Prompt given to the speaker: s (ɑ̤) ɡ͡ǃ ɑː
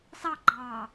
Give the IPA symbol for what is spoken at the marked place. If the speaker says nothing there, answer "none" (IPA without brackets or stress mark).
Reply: ɑ